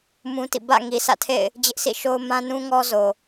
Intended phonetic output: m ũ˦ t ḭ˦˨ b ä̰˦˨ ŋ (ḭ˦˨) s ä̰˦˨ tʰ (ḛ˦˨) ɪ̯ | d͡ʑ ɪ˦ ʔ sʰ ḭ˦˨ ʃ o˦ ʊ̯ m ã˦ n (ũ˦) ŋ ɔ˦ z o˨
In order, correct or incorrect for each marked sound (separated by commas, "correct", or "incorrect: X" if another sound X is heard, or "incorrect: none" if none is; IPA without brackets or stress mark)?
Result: incorrect: i˨, correct, correct